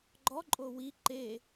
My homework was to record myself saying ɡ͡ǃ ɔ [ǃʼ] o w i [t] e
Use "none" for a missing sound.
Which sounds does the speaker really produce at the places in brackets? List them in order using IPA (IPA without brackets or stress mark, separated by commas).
ǃʼ, ǃ